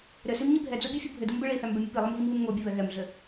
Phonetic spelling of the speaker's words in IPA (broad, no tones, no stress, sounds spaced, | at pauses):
ɾ ɘ s i m ɲ i bʱ ɛ d͡z o bʲ u fʲ ɯ bʱ ɘ d ɯ m b ɘ ɭ i θ æ m b ɛ mʲ o p i lˠ ɯ m ɣ i m β ɯ m ŋ o bʲ ɘ β ɛ ɣ ɛ m ɮ ɘ